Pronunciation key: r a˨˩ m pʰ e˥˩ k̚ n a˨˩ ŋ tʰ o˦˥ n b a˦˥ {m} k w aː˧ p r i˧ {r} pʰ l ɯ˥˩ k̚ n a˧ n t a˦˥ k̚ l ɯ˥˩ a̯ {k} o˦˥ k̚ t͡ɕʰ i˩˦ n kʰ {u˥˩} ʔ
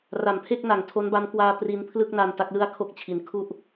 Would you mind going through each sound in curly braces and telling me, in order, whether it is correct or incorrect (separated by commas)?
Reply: correct, incorrect, incorrect, correct